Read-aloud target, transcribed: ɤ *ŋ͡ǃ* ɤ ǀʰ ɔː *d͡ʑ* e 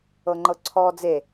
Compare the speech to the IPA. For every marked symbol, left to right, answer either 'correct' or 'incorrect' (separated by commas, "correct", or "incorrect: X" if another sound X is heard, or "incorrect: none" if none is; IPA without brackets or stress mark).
correct, incorrect: d͡z